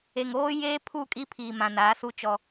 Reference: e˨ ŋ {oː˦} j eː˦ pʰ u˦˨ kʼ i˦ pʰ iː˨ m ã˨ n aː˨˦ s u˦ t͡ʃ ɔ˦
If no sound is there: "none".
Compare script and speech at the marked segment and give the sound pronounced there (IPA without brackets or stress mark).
oː˦